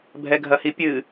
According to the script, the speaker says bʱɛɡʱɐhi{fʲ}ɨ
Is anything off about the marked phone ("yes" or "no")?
yes